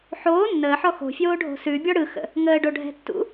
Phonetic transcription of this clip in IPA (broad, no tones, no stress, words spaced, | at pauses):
ħoː nːəːħɔ xo̤fʲoːɖʱo̤ sʉbʲɔ ɽɯxə̰ | ŋəːɖoɖʱɛ̤ tːṵ